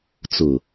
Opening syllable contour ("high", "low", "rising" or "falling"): low